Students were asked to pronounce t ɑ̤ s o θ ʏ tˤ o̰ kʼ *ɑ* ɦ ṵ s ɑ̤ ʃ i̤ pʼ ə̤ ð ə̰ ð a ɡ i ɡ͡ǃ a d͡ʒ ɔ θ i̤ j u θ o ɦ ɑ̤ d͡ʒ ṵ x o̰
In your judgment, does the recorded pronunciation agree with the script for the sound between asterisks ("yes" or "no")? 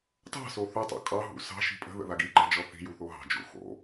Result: yes